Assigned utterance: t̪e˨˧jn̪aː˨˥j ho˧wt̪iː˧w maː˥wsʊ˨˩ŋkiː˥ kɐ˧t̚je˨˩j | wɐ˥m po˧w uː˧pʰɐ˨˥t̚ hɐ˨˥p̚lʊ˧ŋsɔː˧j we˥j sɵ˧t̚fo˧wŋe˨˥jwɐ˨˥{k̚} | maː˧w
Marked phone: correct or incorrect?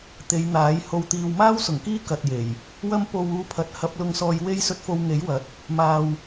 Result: incorrect